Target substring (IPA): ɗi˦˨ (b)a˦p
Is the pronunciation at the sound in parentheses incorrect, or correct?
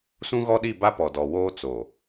correct